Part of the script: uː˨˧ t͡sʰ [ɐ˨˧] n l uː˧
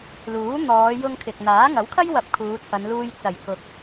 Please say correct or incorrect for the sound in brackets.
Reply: correct